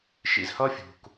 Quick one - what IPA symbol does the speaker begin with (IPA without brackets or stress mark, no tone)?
ʃ